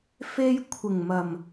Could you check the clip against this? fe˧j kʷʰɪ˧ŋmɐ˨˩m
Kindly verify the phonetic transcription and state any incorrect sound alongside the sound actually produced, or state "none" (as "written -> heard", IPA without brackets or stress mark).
ɪ˧ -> ɪ˨˩